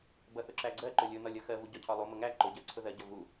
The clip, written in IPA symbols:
bʌθʊǁæɡ͡ǀɜ ǃʊlʲʊ nɒlʲʌxɜvu ɟɒcʰɒlˠu mʊŋæ ǃʊɟɜ ǀʰʊðɜɟʌ vu

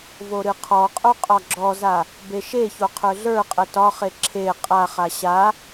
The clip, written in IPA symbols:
voɾɨqʰɔqʼo qʼɒɡ͡ǁɔza | beʃeço qʰə˞ɮə˞qʼə tɒχe ǁʰe qʼaχa ɕa

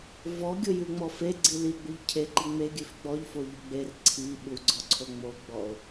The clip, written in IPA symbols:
vɔɡʲojʉŋ͡mɔ feɡ͡ǀi liɡ͡buʎ cʰeǃi ŋ͡meɡʲʉf ɡ͡bɔʎfoʎu ɡ͡ber ǀʰi ɓuɡ͡ǀɔǀʰo ŋ͡moɡ͡bɔo̯

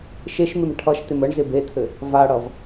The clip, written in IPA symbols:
ʃeʃmɪm ʈʰʌʃt̪ɪm əɳ zɪbet̪ʰɘ | vaɽʌv

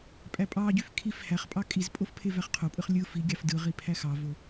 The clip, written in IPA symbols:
pʼæpʼɑɟyf kʰif hæχpʼɑ kʼizpʼof pʰevæχqʰopʼɯχ lʲɯ fiɡʲɑf dɯʁi pʰæxɑvo

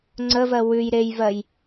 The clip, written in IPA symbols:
ŋ͡ǀəvɜ wʉj ɾejvɜj

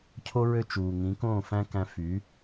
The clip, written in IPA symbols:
cʰo˥ ɹø˥˩t͡ʃuː˩ŋĩ˩˥ kõː˥˩ fæ̃˥kæ̃˧ fy˩˥

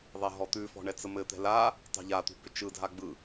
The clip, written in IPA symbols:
ðˤɛɦɔt̪ʉfɔ̤ ɳɛt͡səmɘt̪ɛ̤ la | tˤɛ̤ʎat̪ṳ bʏt͡ʃɯdʱa ɡ͡bɯ

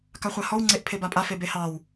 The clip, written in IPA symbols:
kaχʷahɔw ŋ͡ǀeʔpʰebapʼa febehɑw

